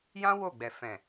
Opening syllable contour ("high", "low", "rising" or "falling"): high